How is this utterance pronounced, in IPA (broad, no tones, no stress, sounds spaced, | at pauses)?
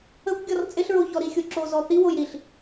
ə kʷ ɡʲ ɔ r t͡sʼ ɪ ɬ ɹ o ç ɔ ɾ i xʲ o ǁ o z ɔ θ i w o j ɾ i ɬ